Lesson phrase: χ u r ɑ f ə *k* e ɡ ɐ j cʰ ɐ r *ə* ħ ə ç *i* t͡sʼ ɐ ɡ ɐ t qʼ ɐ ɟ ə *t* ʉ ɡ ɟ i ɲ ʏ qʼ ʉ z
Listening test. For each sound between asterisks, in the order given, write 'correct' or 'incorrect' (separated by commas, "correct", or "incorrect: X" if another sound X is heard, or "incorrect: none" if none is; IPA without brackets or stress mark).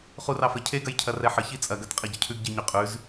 incorrect: cʰ, incorrect: ɛ, correct, incorrect: cʰ